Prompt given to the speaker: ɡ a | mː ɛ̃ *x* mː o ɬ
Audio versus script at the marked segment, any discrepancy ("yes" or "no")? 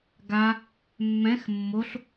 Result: no